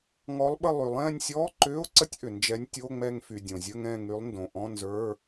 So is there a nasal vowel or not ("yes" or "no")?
yes